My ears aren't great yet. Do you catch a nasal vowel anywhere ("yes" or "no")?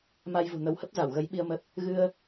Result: no